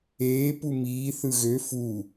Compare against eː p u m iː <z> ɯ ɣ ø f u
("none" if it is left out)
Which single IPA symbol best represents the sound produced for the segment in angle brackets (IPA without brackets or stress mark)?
θ